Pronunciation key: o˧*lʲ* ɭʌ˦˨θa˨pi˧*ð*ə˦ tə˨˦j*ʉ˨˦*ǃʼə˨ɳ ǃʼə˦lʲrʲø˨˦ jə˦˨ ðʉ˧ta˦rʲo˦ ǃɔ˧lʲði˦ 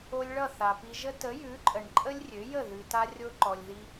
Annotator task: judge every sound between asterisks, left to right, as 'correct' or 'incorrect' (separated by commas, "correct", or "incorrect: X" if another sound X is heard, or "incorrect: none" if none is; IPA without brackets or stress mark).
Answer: correct, incorrect: ʒ, correct